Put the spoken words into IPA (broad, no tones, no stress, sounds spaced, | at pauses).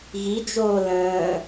ɣ i d͡ʒ oː l ə̃ː